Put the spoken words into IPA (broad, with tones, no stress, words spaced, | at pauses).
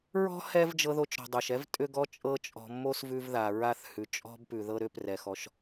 ɹɔ̤˥hɛ˦v d͡ʒɤ˦ðo˦t͡ʃɾɔ̤˨dˤo˩ʃ ɛ˥vtʼʏ˦ɡɔ˦ t͡ʃʼɤ˦t͡ʃʼɔ̤˨ mːo˥s vʉ˦vða˩ ɹa˦θhʉ˩t͡ʃʼɔ̤˥bpʉ˩ ðɤ˦ɾʏ˥prɛ˩xɔ˨ʃ